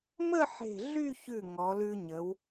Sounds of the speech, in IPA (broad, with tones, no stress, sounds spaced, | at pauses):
m ə˥˧ ħ e̤˧˩ ɮ y˥˧ ç ʉ˧˩ ŋ ɔ˩˧ l ʉ˧ ɲ ə˩˧ w